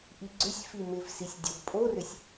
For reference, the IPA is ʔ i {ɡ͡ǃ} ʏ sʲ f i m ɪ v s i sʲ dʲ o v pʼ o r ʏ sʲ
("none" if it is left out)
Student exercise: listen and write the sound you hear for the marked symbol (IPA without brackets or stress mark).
ɡ͡ǀ